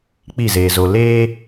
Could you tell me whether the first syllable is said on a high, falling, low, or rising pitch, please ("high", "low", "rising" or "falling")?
falling